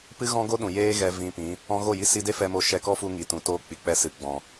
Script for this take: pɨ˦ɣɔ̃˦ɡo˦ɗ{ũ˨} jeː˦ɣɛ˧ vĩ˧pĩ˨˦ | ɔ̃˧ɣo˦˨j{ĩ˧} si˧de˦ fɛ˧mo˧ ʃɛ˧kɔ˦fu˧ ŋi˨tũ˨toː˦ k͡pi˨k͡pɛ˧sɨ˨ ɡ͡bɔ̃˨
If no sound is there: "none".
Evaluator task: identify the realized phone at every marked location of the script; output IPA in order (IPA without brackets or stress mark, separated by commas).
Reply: ũ˨, i˧